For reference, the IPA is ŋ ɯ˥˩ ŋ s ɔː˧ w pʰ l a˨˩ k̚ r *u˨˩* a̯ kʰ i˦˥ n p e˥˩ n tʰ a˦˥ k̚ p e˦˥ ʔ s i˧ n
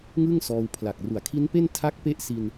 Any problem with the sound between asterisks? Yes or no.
yes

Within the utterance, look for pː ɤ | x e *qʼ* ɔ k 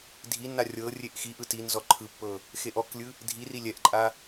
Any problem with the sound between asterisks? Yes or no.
yes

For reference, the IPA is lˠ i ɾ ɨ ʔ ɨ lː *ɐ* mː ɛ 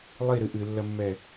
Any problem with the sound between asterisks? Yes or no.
no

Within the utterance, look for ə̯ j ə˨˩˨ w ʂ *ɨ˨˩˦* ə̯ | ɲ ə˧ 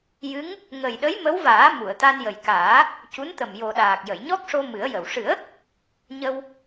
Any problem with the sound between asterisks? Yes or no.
no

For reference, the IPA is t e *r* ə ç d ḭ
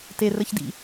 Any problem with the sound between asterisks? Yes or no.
no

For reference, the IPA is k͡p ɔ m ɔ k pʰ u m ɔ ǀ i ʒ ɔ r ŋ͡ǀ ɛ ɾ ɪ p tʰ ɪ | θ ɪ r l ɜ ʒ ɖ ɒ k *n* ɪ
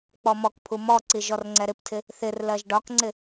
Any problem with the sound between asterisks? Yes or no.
yes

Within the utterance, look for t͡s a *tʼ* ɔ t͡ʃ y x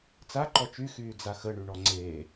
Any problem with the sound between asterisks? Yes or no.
yes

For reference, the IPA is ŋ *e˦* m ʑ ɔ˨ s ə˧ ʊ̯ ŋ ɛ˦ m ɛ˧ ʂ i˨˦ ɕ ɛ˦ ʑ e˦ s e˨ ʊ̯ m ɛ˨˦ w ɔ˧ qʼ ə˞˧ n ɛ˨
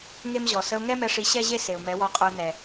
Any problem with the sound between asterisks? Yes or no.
no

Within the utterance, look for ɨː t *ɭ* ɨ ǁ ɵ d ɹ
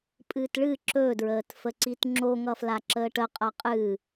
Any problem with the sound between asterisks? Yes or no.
no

